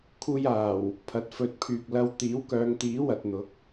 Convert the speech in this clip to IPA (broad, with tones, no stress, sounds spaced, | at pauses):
kʰ uː˧ j aː˨˩ w | pʰ ɐ˨˥ t̚ f ɵ˨ t̚ pʰ yː˨ k̚ l ɐ˧ w t̪ iː˨˥ w k œː˨˧ ŋ t̪ iː˨˥ w ɐ˨ t̚ n̪ ʊ˨˥ k̚